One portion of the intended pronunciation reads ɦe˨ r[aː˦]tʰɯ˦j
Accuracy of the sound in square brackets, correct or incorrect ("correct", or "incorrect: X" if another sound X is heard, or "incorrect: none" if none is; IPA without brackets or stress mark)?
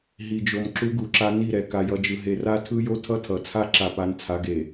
incorrect: a˦